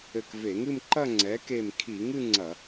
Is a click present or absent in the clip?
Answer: present